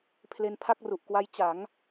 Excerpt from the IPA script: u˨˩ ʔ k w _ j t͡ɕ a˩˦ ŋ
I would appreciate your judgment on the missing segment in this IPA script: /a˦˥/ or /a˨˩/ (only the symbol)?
a˦˥